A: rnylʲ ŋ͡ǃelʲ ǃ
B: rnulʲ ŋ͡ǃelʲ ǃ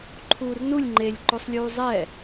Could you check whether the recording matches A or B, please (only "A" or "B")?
B